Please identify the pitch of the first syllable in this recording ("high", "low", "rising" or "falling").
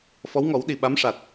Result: rising